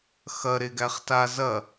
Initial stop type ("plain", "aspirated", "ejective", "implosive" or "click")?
plain